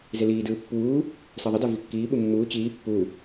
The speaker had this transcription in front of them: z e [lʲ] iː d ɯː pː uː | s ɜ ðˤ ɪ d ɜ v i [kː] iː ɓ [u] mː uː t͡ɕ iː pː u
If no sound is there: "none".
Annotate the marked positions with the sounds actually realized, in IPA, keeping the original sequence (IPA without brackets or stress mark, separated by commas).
l, kː, u